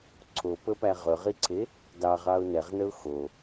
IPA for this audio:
ǀʰ o p ə p æ ʁ ɵ ʁ i ǀʰ e | d ɑ ʁ ɑ ʊ̯ n ɛ ʁ n ə ʊ̯ x o

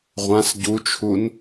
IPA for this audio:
ʁʷ ã s ɟ u t͡ʃʰ u n

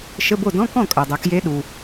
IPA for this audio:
ʃ ə˧˥˧ b o˥˩ d ɔ̃˧˥˧ k ɔ̃˥˩ kʼ œ˩ dˤ œ˩ k j e˧˥ ɗ u˩

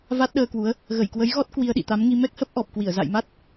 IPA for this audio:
v a˦˥ t̚ ɗ əː˧ k w u˨˦ ə̯ | ɣ ə˧˩ j k w ə˨˦ j ɣ ɔ˦˥ t̚ k w i˧ ə̯ ɗ ḭ˧˨ t̪ a˨˦ m ŋ i˧ m ɛ˦˥ k̚ h ə˦˥ p̚ ʔ ɔ˨˩ p̚ k w i˧˩ ə̯ z a̰˧˨ j m a˦˥ t̚

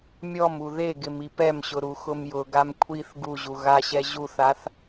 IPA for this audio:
mʲ ɔ m u ð e ɡ ɪ m i p ɛ m ɕ ʊ ɾ u x ʊ m j ʊ ɡ a m kʷʰ i θ ɡ u ʑ u ɣ a ɕ ɛ ʑ u θ a θ

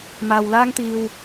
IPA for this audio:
m aː˨ w l aː˥ ŋ t̪ iː˧ w

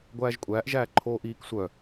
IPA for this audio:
ɡʷ æː ʒ kʷʼ æː ʔ ʒ æː ǃʰ oː ʔ iː k sʷ œ

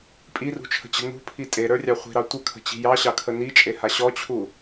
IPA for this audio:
pʼ i r ṳ t͡ʃʰ ə̤ t͡ɕ ə̤ n ṳ pʰ i tʼ e ɾ ə˞ rʲ ɑ χʷ i̤ ɾ ɑ tʷ ə kʰ ə̤ t͡ɕ i̤ j ɑ ɕ ɑ kʰ ə n i t͡ʃʼ e h a ɕ ɔ t͡ɕʰ u

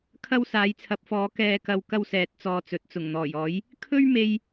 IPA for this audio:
kʰ ɐ˥ w s aː˨˥ j t͡sʰ ɐ˨˥ p̚ f ɔː˨˥ k ɛː˧ k ɐ˧ w k ɐ˥ w s ɛː˨˥ t̚ t͡s ɔː˧ t͡s ɵ˨ t̚ t͡s ʊ˨˩ ŋ n̪ ɔː˨˩ j ɔː˨˥ j | kʰ ɵ˥ ɥ m e˧ j

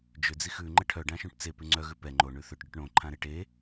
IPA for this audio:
d͡ʒ ʏ d͡z i x ʉ ŋ͡ǃ ə ʈʰ œ ɖ ã ʃ õ ʈ t͡s e p ʉ ŋ͡ǀ œ ɣ ʉ p ɛ ŋ͡ǃ o ɳ ʉ θ ʏ ʈ ɖ ʏ ʈ ɳ õ ǃʰ ã ɾ e ʈ e

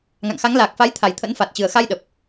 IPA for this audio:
ŋ a̰˧˨ ŋ x a˨˦ ŋ l aː˨˩ k̚ f a˨˦ j t̪ʰ a˨˩ j t̪ʰ ə̰˧˥ n f a˨˩ t̚ t͡ɕ ɨ˨˩ ə̯ x a˧ j ɗ ə˨˩ p̚

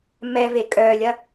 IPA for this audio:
m ɛ v e kʼ œ lʲ ɐ

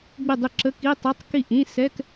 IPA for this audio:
ɡ͡b ɪ˥˩ dˤ ɪ˥˩ ǁ ə˧˥˧ k i˧˥˧ tˤ ɪ˧˥˧ tˤ k i˥˩ ʔ ĩ˧˥˧ s ɛ˧˥˧ k

